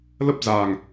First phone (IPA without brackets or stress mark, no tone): l